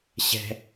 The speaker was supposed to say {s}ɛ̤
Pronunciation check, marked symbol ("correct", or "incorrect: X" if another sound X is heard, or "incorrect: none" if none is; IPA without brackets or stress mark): incorrect: ɕ